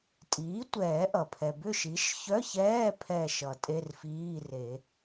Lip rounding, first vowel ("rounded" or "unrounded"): unrounded